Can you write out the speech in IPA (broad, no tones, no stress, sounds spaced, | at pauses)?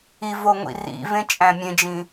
i v o ŋʷ ḭ r ḭ v ẽ t͡ʃʼ æ̃ mʲ ẽ d͡ʒ ĩ